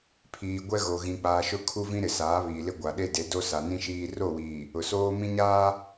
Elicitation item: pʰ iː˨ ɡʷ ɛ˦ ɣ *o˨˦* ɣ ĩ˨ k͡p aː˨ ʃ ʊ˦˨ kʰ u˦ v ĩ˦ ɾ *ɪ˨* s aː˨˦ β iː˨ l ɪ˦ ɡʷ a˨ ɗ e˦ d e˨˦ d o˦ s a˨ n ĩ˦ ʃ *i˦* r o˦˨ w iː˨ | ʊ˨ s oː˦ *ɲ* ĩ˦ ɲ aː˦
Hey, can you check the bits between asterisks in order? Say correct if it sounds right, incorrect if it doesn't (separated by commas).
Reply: incorrect, correct, incorrect, incorrect